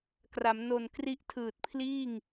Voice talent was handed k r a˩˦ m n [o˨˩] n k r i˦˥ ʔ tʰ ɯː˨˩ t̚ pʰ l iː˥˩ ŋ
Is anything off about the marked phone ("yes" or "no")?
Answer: no